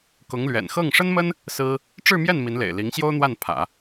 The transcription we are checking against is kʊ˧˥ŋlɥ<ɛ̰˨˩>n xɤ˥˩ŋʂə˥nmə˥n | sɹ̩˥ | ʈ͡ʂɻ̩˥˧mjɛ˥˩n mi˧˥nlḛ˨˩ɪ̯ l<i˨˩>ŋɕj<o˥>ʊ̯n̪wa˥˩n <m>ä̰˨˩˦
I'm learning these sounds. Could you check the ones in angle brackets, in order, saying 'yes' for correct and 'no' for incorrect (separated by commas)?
yes, no, yes, no